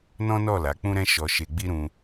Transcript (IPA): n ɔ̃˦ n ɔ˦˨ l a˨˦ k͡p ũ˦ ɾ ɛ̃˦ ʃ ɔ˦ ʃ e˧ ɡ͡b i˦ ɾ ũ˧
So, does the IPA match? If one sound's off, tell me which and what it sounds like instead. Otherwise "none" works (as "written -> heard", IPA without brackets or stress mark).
none